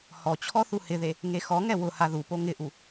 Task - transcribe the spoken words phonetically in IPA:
h ɔ t͡ɕʰ ɔ θ u h ɪ ð e | ŋ e x ɔ ŋ ɛ w ʊ h a ð u p o ŋ ɪ ʔ u

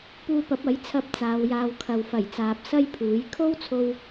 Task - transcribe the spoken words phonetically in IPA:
p uː˧ p ɐ˨˥ p̚ ɐ˨˥ j t͡sʰ ɐ˧ p̚ t͡s aː˨˧ w j aː˧ w kʰ ɐ˨ w f ɐ˨˩ j t͡s aː˨ p̚ s ɐ˥ j pʰ uː˨˥ j kʰ o˥ w t͡sʰ o˧ w

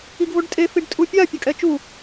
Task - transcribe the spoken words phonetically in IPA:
i ɡ v o ɖ tʼ e f i ɖ tʼ u pʲ a pʲ ʌ kʼ ɛ t͡ʃ u

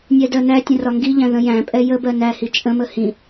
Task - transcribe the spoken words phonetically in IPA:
nʲ ɛ d ɜ n æ tʲ ə̃ r ɒ ŋ ɡ i ʎ æ̃ ð ə̃ j æ̃ pʼ ɛ j ə b ɜ n æ h i t͡ʃʼ ə̃ m ə h ĩ

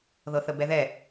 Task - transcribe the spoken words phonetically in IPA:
ð ɤ θ ə b ɛ ð ɛ

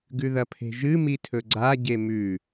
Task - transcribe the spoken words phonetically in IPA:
ɡ ʉ ð ɐ pʰ e̤ ʒ ɨ m i tʰ ɵ ɡ͡ǀ a ɟ e m ʉ

